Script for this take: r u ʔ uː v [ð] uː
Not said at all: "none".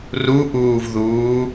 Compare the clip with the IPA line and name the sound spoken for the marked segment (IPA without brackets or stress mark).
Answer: ð